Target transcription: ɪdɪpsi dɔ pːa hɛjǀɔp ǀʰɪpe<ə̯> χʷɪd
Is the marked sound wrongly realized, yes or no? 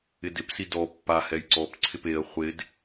no